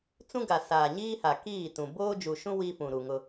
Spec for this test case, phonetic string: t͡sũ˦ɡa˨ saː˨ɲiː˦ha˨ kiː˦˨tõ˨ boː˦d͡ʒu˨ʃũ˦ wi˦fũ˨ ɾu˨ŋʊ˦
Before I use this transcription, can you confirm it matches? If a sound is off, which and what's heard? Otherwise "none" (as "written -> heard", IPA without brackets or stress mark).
õ˨ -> ũ˨